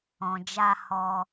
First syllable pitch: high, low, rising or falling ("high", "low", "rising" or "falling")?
low